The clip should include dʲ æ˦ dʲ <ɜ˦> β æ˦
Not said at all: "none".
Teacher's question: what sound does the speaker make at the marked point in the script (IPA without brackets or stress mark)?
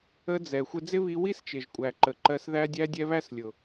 ɛ˦